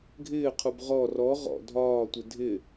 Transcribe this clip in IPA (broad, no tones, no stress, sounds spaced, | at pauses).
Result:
ɡʱ ɪː qʰ u b ʁ ɔ r ɔ ʁ ɔ̰ dʱ ɒː tʷ ɪ dʱ ɪ